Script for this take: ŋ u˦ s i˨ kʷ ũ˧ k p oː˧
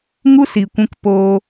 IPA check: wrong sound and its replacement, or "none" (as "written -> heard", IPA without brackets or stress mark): none